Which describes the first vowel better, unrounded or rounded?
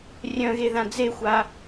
rounded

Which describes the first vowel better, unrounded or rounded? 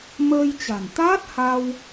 unrounded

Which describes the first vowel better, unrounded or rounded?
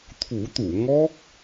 rounded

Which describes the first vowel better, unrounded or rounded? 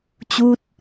rounded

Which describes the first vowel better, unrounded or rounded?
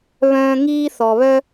rounded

